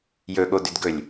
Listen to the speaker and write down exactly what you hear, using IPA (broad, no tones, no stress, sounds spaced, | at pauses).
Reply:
j ɵ ɠ o d ʏ d ɡ ɵ lʲ